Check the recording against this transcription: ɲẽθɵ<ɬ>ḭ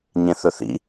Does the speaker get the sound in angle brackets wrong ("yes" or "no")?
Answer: yes